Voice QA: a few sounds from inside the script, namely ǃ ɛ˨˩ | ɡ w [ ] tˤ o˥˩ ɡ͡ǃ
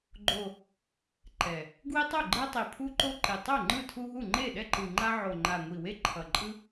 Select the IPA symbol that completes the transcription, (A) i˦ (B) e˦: A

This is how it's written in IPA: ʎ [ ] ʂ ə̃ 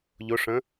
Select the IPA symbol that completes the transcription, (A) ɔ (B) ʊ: B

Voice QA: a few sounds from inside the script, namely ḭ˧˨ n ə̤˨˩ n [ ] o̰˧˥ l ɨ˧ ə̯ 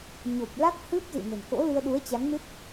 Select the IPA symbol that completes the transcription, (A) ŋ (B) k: B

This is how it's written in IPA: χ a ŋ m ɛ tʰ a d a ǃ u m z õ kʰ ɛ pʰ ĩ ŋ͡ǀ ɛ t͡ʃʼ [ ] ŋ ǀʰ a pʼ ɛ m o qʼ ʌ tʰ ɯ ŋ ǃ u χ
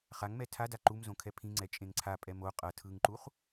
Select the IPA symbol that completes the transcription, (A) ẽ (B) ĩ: A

